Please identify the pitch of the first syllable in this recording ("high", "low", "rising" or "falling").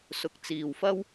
rising